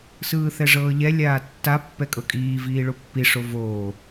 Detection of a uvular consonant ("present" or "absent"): absent